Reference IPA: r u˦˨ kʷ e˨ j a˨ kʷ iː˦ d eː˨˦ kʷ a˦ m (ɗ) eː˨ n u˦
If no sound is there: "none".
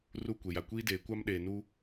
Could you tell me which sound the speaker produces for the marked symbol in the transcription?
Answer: ɗ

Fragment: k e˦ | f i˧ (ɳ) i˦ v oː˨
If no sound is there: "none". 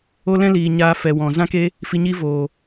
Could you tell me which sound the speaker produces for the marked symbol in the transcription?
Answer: ɲ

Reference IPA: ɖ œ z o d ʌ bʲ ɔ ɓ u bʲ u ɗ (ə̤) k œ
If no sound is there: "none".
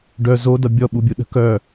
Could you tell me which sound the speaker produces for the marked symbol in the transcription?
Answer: ə̤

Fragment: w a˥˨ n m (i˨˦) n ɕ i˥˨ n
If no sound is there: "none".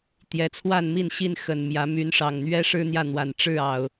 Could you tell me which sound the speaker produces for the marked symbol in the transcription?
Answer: i˥˨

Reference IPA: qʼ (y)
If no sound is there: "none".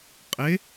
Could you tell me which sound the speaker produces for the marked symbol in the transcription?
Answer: e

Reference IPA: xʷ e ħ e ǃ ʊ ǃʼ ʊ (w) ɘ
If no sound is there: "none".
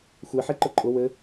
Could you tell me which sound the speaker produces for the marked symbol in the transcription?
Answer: w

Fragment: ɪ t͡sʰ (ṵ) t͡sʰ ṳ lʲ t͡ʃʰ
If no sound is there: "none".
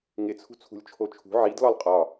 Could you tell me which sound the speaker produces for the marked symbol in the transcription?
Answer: ṳ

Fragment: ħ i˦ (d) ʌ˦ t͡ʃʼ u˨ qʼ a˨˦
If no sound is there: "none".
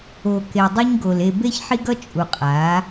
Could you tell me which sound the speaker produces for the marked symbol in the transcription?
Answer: ɡ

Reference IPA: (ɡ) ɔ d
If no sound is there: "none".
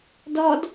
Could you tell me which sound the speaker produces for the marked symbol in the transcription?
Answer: d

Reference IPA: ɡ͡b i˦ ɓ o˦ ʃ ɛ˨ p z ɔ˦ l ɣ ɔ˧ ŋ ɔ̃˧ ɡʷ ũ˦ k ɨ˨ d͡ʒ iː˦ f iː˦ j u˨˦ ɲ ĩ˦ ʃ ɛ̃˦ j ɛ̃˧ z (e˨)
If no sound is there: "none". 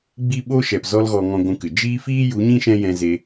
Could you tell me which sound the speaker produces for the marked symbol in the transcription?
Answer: e˧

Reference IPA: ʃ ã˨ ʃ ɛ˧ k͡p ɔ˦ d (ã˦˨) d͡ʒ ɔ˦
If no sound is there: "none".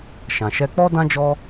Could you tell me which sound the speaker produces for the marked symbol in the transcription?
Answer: ã˦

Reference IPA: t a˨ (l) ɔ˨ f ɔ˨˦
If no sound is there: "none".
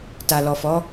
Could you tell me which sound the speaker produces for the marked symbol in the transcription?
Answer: l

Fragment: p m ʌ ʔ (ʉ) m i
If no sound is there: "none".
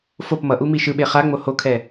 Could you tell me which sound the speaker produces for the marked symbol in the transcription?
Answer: u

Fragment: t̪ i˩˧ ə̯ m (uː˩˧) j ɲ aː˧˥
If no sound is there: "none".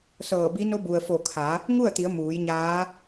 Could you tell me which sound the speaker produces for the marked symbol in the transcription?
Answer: uː˩˧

